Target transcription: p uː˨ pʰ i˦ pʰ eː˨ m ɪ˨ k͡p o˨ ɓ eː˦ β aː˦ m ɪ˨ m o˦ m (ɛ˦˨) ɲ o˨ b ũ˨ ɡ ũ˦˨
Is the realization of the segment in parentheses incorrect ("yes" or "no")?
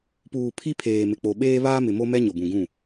yes